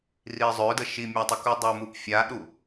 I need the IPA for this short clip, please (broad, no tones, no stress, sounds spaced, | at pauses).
r i zˤ ø d ə ʃ i mʲ a tˤ ə k u dˤ u m u p fʲ a ɗ u